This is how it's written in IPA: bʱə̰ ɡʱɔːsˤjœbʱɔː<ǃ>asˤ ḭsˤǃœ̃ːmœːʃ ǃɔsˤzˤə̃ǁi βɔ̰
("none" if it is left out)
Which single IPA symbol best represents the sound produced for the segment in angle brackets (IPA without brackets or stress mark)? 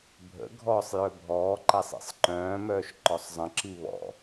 ǃ